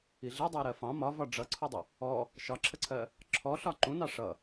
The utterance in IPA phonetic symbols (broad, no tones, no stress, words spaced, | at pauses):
iɮi dˤɜɾɜfɑ̃ mɒvɒ ɖ͡ʐʌǀʰudˤə | ɔ | ʃɒǁʰəǀʰɜ | ǁʰɔɬɒ ǃũnɑ ʂʌ